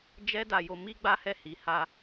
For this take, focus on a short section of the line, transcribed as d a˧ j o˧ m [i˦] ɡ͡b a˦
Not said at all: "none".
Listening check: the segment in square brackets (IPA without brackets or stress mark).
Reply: i˦